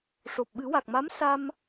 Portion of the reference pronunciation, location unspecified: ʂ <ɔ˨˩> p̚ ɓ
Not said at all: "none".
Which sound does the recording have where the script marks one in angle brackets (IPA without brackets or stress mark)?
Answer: o˨˩